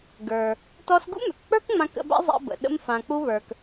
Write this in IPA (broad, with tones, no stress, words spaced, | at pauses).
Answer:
ɡə˞˩ | tɔ˧sɡṵ˥mʏ˩kk͡pə˞˥k ŋ͡mã˧kə̰˧ba̰˥ zˤa̰˧bə̰˩ ɗə̰˧mfã˩k͡pu˧βə˞˩k